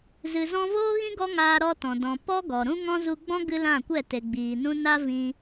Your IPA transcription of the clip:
z ɨ˨ z ɔ̃˧ v oː˦ ɣ ĩ˦ ɡ ɔ˦ ŋ aː˧ ɾ ɔ˧ t ɔ̃˨ d ɔ̃˨ p ɔ˦ ɡ ɔ˨ ɾ ũ˦ ŋ ɔ̃˦ z u˧ ɡ͡b ɔ̃˦ ɡ ɨ˦ l ã˦˨ kʷ ɛ˦˨ t e˨ ɡ͡b iː˨ n ũ˧ n a˦ v ĩ˧

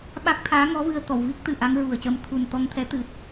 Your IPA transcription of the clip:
ɓ a˦˥ k̚ t̪ʰ aː˧˥ ŋ ɔ˧˥ v ɨ˧ ə̯ t̪ ɔ˨˩˨ w v i˦˥ k̚ t̪ ɨ˨˩˨ ʔ a˧˥ ŋ ɹ u˨˩ ə̯ c ə˧˥ m t̪ʰ u˨˩ n t̪ ɔ˧ ŋ t̪ʰ ɛ˧˥ t̪ ɨ˨˩ t̚

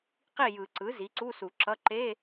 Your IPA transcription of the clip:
q i˥˨ j ɯ˨˩˦ ǀ ɯ˩˥ z i˩˥ ǀ u˧˥˧ s u˨˩˦ ǁ ʌ˧˥˧ ǃ e˧˥˧

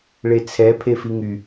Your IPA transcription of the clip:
ɭ e t͡sʰ ɛ pʰ e f i ŋ y

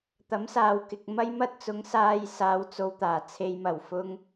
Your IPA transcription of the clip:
t̪ ɐ˨˥ m s aː˨ w k ɪ˨ k̚ m ɐ˥ j m ɐ˥ t̚ t͡s ʊ˨˥ ŋ s aː˧ j s aː˨ w t͡s o˨ w t̪ aː˨˩ t͡sʰ e˨ j m ɐ˨˩ w f ʊ˧ ŋ

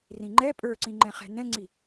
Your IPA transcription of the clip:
r ĩ ŋ͡ǃ ɛ pʼ ə˞ ǀ ĩ ŋ͡ǃ ɛ̃ χ ɛ̤ n ɛ̃ ŋ͡ǀ i

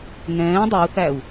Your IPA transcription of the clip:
ŋ ɛ̃ː dˤ ø u̯ θ æ u̯

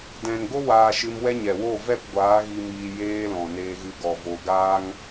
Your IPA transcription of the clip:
d ɛ̃˨ n ɡ o˦ w aː˧ ʃ ɨ˧ m w ɛ˦ ɲ ɛ˨ w o˦˨ v ɛ˦˨ p ɡʷ aː˨˦ ɣ i˧ m iː˧ j eː˧ l ɔ̃˨ n eː˧ ɣ ɨ˧ ɡ ɔ˨ v o˧ ɡ aː˦ ŋ

